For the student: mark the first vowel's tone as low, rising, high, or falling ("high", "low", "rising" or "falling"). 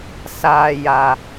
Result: low